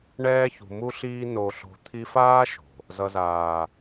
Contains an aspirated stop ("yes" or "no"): yes